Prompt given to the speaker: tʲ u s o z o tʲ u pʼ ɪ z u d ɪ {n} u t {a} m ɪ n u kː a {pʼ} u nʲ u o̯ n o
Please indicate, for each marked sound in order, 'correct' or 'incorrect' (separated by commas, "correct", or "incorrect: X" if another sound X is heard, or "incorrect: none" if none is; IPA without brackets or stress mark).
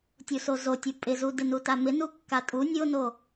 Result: correct, correct, incorrect: tʼ